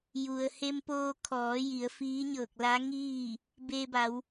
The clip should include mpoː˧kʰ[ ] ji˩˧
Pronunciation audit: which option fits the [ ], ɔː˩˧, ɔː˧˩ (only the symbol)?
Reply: ɔː˩˧